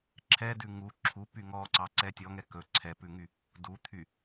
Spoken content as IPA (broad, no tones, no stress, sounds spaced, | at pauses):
ǁʰ ɛ d ʉ ŋ u ǁʰ u p y ŋ ɔ ǀ ɑ ǀ ɛ tʲ ɔ ŋ ɛ k ɵ ǀʰ ɛ p ʉ ŋ y | d u t̪ʰ y